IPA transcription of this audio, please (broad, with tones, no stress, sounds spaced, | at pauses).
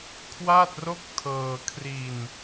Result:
kʰ w aː˥˩ t̚ r o˥˩ k̚ tʰ ɤː˧ kʰ r i˧ n